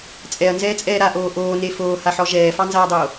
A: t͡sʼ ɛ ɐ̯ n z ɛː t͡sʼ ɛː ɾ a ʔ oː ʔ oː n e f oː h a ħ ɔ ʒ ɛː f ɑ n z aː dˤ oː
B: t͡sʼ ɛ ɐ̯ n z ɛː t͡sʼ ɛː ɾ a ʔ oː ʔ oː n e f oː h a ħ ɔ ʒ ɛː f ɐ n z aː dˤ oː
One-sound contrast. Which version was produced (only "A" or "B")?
A